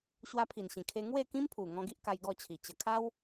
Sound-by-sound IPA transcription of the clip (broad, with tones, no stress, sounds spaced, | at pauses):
ɕ w a˧ pʰ i˨˩ n ɕ ĩ˨˩ kʰ e˧ ŋ w e˥˧ k ĩ˦ m pʰ u˨˩ ŋ ɔ̃˧ ɡ i˦ ʔ k a˧ j ɡ ɔ˥˧ t͡ɕʰ i˨˩ t͡ɕ ə˨˩ kʰ a˦ w